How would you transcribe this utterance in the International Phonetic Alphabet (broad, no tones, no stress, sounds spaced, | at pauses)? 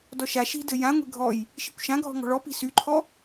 d ɔ ʃ a ʃ i̤ d ɘ j ã ŋʷ e̤ ɡʱ ɔ j | ʃ i kʷ ʃ ã ɡʱ ɔ̤ ŋ ɔ̤ ɭ ɔ p i̤ s y ǃʰ ɔ